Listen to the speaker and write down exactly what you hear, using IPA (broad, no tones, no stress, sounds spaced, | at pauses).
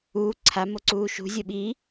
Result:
uː ǀʰ a m o ǀ uː ʃ ṳ zʲ o ɓ i